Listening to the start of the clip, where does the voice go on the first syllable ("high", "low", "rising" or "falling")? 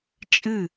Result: falling